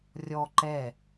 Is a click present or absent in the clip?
present